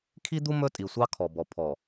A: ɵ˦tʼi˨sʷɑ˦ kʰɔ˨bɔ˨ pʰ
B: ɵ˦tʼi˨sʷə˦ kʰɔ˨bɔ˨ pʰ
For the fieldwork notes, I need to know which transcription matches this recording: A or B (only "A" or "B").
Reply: A